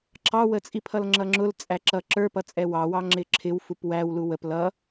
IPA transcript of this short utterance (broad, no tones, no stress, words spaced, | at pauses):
ǁɑwət͡sʼipʰʌl ŋ͡ǁʌŋ͡ǁʊl t͡sʼæǁʌ ǁə˞pʌ t͡sʼɛwɑwɑ ŋ͡ǁɪǁʰɪw fupwæw luwəp lʌ